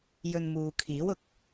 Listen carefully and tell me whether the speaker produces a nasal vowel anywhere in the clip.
no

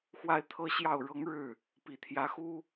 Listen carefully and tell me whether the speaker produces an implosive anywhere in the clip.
no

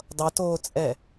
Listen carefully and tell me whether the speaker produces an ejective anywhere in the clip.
yes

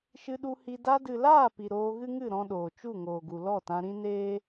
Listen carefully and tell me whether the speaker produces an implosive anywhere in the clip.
yes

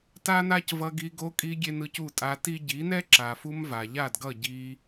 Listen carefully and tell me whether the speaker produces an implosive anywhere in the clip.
no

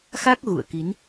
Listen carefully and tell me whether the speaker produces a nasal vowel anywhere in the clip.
no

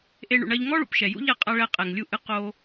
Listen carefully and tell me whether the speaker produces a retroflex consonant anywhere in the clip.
yes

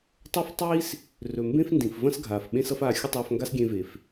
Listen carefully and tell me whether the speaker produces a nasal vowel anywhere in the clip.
yes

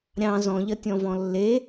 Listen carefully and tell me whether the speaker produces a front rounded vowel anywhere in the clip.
no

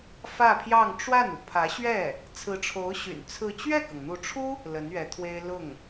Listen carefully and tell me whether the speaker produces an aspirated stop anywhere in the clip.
yes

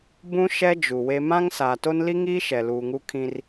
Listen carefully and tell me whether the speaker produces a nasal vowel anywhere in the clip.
yes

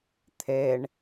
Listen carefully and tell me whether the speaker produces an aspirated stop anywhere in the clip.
yes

